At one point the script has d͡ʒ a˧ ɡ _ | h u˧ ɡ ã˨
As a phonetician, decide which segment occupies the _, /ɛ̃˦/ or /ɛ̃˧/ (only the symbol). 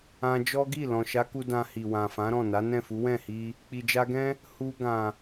ɛ̃˦